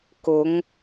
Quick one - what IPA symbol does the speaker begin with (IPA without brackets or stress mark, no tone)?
k